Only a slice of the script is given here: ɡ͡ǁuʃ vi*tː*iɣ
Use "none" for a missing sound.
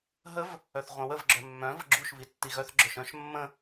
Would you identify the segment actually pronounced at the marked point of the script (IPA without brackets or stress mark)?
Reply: tː